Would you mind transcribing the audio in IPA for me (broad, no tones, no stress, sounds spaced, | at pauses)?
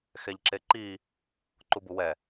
x ɛ ʎ ǁ e ǃ i | ǃ u b u w ɛ